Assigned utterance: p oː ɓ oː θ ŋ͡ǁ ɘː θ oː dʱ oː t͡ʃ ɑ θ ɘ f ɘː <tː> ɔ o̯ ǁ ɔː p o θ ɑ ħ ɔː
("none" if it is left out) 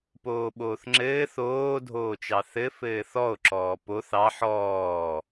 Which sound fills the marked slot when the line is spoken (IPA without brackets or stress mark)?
θ